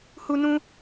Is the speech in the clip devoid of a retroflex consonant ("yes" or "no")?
yes